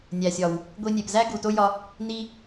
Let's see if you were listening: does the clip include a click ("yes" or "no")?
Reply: no